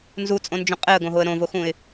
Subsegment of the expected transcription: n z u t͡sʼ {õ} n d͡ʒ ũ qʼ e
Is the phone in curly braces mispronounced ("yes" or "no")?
no